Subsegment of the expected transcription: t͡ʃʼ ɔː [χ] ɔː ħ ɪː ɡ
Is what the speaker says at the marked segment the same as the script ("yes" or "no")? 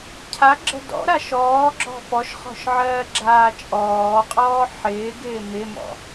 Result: no